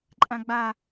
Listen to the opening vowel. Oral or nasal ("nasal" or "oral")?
nasal